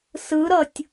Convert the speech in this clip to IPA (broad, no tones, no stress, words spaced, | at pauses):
sɯɾʌtʲ